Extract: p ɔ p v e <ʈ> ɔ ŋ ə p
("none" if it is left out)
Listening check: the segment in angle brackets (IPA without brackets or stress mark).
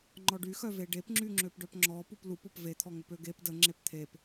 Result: t̪ʰ